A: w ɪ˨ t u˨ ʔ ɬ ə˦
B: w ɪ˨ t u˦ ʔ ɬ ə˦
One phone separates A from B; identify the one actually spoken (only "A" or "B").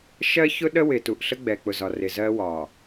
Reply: A